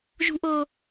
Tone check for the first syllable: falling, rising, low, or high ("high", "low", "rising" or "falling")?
high